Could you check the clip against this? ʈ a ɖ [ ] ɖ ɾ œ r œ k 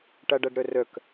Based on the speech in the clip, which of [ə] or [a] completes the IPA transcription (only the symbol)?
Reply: a